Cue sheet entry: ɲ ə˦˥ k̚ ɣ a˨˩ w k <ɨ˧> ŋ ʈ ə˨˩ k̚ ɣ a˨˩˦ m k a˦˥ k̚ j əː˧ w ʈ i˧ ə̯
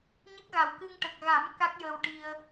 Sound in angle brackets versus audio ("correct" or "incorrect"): correct